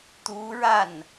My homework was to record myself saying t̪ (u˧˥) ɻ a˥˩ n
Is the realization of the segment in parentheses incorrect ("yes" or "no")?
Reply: no